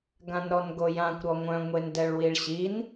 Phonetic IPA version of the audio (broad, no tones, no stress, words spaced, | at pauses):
ɡãnɾɔnɡojãkʷ ɾɔŋʷœ̃ ŋʷendɛɭwiɭɕin